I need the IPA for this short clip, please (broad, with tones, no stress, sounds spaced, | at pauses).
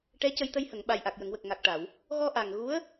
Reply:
ʈ ɛ˧˥ c ə˧ j t̪ ə˧ j h ə˨˩˨ ŋ ɓ a˨˩ j ʔ a˨˩ k̚ j ə˨˩˨ ŋ w ə˨˩ k̚ ŋ a˨˩ k̚ ʈ a˨˩˨ w | ɣ ɔ˧ ʔ a˨˩ ŋ ɣ u˧˥ ə̯